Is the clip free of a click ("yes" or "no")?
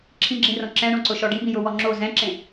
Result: no